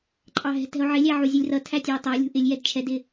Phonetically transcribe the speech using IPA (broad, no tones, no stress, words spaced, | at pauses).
ǃʼɑɦɛ̤tɛ̤o̯ ʕɪlʲæʕu zʲulʲrʌ tʰætʲɑo̯tˤʌo̯ lʲṳʔɪlʲ jɛdt͡ʃʰɛdɪ